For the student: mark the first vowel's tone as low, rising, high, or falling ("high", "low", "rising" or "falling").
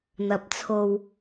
rising